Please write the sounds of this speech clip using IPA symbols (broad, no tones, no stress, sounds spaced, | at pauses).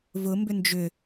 v ʊ m b ʏ n d͡ʒ ʏ